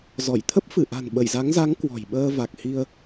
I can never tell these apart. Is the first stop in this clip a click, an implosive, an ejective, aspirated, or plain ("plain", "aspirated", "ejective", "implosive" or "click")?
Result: aspirated